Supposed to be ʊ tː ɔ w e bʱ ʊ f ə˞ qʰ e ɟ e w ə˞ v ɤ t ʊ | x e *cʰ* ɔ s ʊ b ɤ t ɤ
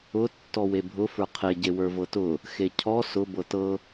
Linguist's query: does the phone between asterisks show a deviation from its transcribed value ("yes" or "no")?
no